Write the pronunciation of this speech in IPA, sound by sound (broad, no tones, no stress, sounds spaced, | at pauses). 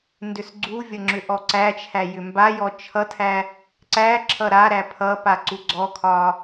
n d ʏ s ɡ͡ǀ u vʲ ʌ ŋ͡ǁ ʏ ʔ ɔ ǀ æ t͡ʃʰ æ j ʏ m b a j ɔ t͡ʃʰ ʌ tʰ æ | ǀ æ ǁʰ ʌ ɾ a ɾ æ pʰ ʌ p a ǀ u ɡ͡ǀ ɔ kʰ ɒ